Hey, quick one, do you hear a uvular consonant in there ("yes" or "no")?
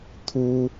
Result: no